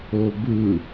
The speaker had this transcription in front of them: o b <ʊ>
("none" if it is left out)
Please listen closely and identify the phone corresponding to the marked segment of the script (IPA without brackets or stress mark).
ɯ